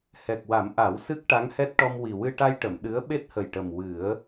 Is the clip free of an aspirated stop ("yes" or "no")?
yes